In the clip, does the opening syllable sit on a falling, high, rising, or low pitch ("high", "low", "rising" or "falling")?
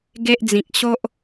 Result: high